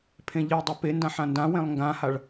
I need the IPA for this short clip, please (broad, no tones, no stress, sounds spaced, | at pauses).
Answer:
pʰ ẽ ʎ i dˤ ɐ p e n d ã ħ ã n d ã w ẽ lˠ ŋ ɡ ã h a ɭ